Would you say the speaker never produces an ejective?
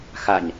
yes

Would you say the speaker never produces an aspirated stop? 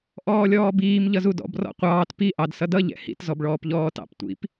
yes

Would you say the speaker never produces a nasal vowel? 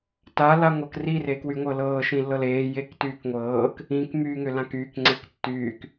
no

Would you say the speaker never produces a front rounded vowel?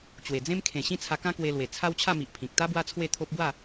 yes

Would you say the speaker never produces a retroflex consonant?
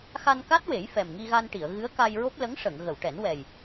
no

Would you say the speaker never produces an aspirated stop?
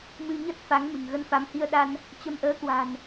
yes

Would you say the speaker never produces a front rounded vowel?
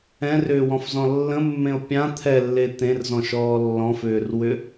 no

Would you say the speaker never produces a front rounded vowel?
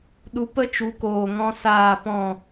yes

